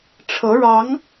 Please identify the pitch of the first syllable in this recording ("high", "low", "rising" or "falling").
rising